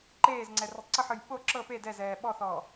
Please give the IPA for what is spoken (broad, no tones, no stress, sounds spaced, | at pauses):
ǃ eː z ŋ͡ǀ ɛ r ɯ tˤ ǀ ɯ ħ ɯ j ɓ o ǁ ɤ p e d ɛ z ɛː ɓ ɔ θ ɔː